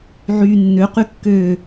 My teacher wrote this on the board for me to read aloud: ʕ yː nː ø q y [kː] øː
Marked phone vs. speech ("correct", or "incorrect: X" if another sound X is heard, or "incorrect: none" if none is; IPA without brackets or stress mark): correct